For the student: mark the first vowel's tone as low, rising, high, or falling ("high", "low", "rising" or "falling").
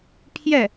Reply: falling